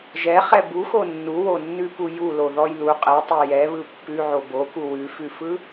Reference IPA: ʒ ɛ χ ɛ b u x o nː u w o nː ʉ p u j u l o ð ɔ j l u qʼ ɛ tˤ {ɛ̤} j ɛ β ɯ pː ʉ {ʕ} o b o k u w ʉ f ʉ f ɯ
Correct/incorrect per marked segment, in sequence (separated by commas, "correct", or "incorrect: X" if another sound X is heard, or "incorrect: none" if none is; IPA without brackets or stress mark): incorrect: ɛ, correct